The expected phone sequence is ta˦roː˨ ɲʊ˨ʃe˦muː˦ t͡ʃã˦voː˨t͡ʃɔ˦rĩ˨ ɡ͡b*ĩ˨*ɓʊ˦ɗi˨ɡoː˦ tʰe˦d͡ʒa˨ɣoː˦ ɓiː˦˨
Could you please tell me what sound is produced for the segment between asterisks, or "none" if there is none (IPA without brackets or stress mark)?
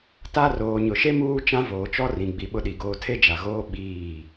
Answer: i˨